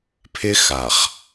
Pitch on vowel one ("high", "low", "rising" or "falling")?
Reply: high